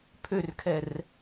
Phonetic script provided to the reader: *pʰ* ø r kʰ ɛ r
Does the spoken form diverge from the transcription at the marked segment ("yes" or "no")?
no